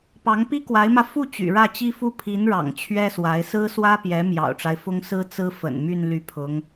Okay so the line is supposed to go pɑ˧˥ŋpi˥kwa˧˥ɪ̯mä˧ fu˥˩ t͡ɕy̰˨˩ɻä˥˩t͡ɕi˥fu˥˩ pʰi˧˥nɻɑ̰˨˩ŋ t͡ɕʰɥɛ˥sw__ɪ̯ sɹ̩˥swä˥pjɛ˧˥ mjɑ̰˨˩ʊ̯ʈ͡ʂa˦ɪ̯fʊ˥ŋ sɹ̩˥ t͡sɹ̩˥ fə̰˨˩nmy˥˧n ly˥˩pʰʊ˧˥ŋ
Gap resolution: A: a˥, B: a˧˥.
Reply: B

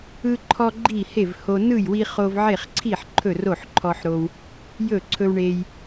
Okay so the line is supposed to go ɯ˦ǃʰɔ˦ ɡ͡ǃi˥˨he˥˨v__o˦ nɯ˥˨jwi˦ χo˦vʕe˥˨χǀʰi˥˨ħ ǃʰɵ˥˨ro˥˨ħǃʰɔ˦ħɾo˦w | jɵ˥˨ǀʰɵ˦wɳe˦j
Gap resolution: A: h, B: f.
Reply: A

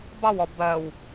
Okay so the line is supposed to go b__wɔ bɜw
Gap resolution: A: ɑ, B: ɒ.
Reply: A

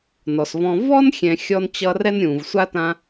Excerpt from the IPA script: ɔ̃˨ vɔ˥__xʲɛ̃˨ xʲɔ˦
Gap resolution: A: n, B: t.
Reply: A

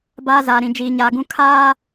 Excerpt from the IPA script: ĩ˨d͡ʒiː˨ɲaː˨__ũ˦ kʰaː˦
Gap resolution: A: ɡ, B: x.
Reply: A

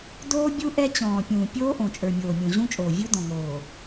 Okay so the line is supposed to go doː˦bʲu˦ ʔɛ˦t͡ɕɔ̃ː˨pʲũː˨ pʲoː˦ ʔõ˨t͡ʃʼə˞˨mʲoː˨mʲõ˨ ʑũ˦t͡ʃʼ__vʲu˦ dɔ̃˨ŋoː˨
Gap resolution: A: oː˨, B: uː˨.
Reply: A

